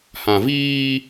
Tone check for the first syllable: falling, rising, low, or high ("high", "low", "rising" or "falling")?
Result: low